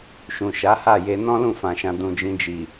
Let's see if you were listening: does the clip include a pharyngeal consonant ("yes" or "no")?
no